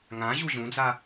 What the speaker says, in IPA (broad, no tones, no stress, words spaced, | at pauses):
ŋãʑu ʑũd͡za